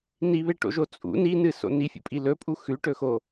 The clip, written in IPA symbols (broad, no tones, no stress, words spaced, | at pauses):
niβeʈo̰ʒo t͡sʼṵ ninɨso̰ nifʲṵpʼi lɵpʼu xʉʈɵxo